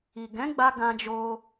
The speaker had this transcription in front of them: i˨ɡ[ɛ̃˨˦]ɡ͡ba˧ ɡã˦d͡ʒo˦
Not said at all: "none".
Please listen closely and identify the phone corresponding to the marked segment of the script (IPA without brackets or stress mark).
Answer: ɛ̃˨˦